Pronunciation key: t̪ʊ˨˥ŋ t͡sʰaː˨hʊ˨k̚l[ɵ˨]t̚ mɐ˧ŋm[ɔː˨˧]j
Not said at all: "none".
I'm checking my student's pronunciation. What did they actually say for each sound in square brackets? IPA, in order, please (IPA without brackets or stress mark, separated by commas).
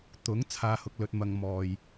ɵ˨, ɔː˧